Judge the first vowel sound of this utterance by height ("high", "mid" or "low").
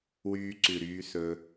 high